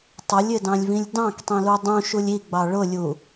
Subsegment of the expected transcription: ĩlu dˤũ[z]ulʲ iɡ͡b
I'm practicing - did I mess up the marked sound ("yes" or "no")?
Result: yes